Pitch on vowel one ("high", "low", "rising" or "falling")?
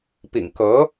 low